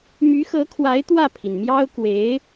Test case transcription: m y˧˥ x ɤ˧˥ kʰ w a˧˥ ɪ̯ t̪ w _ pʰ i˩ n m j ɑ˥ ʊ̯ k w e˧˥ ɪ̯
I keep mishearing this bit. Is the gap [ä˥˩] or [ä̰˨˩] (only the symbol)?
ä˥˩